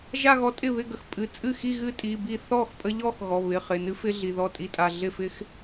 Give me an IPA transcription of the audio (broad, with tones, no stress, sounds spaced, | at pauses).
ʒ a˥˧ ɣ ɔ˧ tʼ ɪ˥˩ β ɪ˥˧ ɡ ə˩˧ x pʼ ɨ˩˧˩ t͡sʼ ɨ˥˩ x i˥˧ ɣ ɨ˦˥ tʼ i˩˧˩ b i˥˩ θ ɔ˥˩ x pʼ ə˧ ʎ ɔ˥˧ x ɣ ɔ˩˧˩ β ɪ˩˧˩ χ ɪ˩˧˩ n ɨ˦˥ f ɪ˦˥ ɮ i˩˧˩ ð ɔ˥˩ tʼ i˦˥ tʼ a˩˧˩ ɮ ɪ˥˩ f ɪ˦˥ x